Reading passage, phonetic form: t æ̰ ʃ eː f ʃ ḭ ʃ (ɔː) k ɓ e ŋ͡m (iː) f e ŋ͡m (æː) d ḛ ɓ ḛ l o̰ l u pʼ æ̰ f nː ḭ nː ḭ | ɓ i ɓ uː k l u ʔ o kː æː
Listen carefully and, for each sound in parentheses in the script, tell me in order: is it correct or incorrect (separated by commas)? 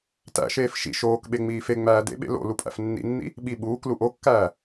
incorrect, correct, correct